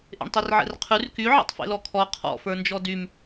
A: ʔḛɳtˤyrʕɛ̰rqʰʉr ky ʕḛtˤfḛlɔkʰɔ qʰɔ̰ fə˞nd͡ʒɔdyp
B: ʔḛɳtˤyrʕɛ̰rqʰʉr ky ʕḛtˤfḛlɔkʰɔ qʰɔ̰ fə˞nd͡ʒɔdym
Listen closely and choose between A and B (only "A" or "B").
B